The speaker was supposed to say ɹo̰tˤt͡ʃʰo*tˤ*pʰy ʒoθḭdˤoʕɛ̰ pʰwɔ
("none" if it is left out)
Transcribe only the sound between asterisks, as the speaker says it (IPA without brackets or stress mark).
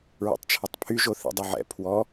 tˤ